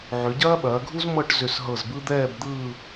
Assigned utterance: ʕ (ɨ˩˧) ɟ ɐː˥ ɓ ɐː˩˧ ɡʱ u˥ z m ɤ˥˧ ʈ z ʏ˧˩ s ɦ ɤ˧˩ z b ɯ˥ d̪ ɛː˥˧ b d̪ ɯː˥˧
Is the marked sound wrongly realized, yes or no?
yes